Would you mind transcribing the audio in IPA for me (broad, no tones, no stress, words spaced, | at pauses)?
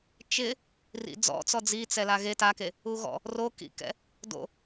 t͡ʃɪ | rḭd͡zɔ̰t͡sɔ d͡zit͡sɛla ɣe take | uɣɔ̰ | rokḭkɛ̰ | do̰